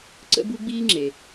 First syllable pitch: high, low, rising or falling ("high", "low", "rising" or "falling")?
high